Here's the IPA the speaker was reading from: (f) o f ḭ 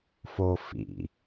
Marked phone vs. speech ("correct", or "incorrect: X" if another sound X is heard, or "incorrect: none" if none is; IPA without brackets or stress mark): correct